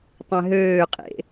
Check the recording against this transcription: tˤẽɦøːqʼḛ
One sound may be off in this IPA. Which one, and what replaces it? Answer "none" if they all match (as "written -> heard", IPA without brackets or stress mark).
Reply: none